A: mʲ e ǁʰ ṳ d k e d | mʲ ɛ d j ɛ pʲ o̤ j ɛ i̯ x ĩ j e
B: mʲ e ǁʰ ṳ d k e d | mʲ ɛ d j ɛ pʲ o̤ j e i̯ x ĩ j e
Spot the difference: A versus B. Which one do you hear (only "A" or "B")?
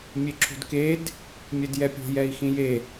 A